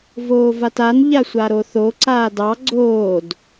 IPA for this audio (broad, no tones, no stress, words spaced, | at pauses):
voːvatan ʎasʷaɾoθo ǀaːdɑ ɡ͡ǀoːd